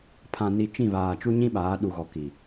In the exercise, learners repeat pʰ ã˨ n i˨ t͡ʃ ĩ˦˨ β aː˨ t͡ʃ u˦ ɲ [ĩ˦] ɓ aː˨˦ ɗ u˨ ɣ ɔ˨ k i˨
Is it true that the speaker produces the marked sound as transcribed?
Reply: yes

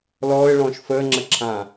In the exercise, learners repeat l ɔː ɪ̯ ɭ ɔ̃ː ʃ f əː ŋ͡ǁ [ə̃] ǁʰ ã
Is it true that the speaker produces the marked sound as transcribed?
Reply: no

